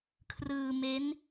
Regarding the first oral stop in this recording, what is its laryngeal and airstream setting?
aspirated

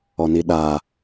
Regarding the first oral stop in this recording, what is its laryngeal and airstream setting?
implosive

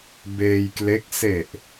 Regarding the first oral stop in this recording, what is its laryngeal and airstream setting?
plain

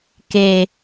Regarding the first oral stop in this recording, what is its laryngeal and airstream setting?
plain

